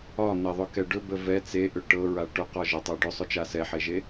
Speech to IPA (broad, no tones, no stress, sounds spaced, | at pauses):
ɒ n̪ ɛ ðˤ ɵ k ɛ ɖ ɵ b ə v ɛ t͡s e ʔ ʏ ʈ ɤ ɹ a ʈ ɵ q ɒ ʒ ə tˤ ɤ ɖ ʏ sˤ ʏ t͡ʃ a s ɛ ħ e ʒ e